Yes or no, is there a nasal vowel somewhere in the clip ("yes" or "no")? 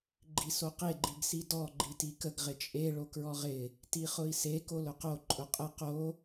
no